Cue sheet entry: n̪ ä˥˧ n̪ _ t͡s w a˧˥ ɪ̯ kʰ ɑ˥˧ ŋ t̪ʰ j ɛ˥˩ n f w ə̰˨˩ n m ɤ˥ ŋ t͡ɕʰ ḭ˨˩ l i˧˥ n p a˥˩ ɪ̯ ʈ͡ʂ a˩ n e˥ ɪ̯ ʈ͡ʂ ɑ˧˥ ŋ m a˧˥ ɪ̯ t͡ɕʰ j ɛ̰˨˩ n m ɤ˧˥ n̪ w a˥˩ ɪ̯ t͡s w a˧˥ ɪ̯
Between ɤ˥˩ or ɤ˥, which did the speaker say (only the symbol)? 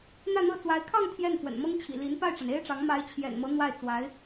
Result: ɤ˥˩